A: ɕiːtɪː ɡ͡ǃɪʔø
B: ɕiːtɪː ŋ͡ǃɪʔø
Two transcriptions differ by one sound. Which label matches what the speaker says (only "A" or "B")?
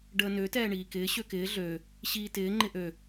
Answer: B